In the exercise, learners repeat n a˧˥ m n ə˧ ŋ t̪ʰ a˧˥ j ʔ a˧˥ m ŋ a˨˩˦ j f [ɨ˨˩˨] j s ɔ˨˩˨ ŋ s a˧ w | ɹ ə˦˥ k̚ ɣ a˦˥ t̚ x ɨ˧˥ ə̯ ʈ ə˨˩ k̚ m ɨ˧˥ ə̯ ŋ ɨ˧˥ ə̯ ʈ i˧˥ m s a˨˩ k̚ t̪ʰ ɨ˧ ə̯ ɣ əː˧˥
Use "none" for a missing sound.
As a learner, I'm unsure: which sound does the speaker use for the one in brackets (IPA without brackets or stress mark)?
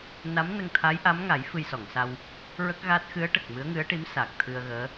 ɨ˧